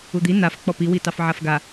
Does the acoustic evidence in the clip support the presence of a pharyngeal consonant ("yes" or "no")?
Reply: yes